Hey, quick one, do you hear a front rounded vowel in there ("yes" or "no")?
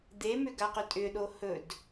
yes